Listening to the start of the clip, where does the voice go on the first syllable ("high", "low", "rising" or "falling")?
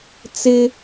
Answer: high